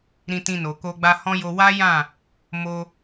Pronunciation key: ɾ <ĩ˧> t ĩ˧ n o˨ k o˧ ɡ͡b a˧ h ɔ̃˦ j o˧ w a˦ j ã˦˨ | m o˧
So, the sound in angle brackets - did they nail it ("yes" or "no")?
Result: yes